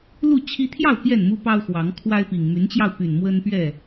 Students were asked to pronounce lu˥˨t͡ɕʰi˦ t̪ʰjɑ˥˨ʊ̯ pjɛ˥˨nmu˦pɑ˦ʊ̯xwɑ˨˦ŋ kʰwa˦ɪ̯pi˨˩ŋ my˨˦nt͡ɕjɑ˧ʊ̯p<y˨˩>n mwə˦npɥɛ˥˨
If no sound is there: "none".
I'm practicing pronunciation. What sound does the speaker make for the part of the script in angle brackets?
y˨˩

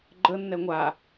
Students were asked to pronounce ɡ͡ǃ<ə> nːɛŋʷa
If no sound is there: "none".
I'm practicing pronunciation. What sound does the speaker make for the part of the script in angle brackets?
ə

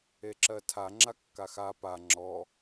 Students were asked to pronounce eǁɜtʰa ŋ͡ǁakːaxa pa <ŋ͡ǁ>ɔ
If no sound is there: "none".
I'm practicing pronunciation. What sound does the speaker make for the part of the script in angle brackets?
ŋ͡ǁ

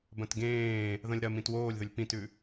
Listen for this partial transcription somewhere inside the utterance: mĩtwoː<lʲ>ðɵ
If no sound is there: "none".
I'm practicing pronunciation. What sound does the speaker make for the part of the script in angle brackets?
lʲ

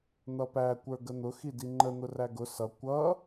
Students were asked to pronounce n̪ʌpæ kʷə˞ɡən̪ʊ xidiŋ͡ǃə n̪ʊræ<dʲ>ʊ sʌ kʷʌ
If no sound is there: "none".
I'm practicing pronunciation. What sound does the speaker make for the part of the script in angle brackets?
ɡ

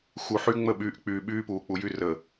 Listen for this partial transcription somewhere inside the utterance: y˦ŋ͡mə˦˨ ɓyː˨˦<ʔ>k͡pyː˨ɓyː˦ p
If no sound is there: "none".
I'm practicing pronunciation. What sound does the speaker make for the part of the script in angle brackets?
ʔ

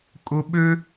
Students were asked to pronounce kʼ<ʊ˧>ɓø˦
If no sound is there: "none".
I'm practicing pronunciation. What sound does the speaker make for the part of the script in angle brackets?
ʊ˧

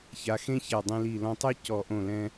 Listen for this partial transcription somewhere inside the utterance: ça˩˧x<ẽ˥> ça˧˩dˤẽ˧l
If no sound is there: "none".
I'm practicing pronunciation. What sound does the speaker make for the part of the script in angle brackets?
ẽ˥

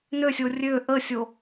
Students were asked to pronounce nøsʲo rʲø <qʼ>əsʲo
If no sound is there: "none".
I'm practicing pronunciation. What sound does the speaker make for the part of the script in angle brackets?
ʔ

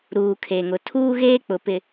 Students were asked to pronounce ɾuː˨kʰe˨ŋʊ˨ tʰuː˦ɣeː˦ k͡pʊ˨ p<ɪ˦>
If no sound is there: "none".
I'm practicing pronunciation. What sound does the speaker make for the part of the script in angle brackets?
ɪ˨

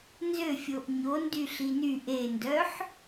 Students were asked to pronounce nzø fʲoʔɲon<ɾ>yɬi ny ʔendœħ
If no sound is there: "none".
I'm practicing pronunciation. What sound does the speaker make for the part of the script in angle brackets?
d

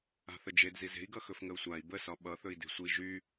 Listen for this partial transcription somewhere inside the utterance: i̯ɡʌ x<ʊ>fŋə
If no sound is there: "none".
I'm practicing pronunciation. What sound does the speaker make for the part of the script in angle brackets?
ɵ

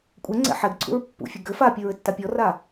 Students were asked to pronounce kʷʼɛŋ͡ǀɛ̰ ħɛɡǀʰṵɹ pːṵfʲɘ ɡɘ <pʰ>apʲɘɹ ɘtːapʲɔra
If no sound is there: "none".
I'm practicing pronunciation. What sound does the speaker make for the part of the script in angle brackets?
f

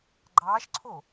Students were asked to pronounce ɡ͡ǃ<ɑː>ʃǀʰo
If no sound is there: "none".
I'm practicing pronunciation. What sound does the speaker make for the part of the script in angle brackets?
ɑː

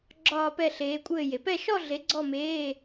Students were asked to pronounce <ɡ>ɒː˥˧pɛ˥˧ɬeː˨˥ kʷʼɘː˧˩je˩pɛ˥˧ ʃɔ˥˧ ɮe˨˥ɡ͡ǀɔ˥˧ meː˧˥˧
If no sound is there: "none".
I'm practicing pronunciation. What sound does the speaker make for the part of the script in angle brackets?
ɡ͡ǁ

